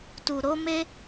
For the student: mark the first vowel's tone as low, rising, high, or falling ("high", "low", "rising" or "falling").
low